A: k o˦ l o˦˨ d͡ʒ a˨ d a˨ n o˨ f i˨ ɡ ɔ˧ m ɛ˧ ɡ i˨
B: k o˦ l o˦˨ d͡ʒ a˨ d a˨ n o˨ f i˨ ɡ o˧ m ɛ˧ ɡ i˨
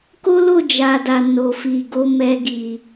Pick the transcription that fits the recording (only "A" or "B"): B